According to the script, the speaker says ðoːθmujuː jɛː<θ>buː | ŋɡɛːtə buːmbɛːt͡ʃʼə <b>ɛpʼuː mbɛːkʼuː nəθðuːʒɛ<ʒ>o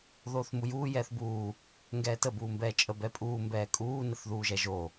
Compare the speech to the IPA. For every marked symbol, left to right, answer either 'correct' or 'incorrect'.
correct, correct, correct

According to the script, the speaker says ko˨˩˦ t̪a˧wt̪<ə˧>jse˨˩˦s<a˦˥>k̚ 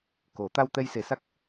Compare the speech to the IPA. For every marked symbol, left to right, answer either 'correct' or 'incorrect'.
incorrect: ɛ˧, correct

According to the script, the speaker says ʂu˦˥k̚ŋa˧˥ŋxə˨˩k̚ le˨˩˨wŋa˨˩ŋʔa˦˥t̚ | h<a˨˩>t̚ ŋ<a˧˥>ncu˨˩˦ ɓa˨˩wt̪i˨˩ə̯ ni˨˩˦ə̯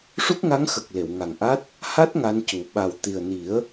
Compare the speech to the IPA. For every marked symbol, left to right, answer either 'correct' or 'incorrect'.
incorrect: a˦˥, correct

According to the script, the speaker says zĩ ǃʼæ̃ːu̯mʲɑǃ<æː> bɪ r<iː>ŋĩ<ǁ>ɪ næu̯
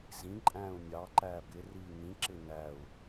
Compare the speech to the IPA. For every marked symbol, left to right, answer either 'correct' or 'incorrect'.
correct, correct, correct

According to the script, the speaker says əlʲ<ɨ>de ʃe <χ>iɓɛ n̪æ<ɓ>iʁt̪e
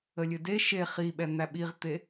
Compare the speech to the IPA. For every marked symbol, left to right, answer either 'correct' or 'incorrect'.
correct, correct, correct

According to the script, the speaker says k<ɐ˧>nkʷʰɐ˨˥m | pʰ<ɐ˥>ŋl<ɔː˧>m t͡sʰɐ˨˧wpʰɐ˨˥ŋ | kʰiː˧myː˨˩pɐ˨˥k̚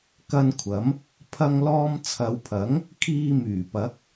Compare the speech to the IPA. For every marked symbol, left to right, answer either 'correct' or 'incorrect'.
correct, incorrect: ɐ˧, correct

